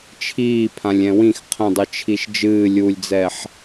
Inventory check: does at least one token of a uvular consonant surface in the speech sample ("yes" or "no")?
yes